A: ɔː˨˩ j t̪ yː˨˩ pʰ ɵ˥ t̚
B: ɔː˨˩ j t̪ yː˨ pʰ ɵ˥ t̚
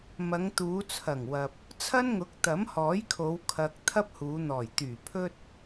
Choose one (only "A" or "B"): A